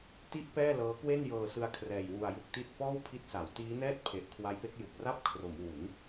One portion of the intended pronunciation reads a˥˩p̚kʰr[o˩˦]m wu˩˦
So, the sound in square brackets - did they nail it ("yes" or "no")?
yes